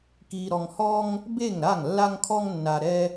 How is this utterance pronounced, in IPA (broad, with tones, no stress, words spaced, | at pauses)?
ki˨ɾɔ˨ŋhɔ˧ŋ | be˦˨ŋɾa˦˨ŋ lːa˧ŋkʰɔ˧ŋnːa˨ ɾɛ˧